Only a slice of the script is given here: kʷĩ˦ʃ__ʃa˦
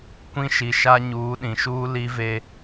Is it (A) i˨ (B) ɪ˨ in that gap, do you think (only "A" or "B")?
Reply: A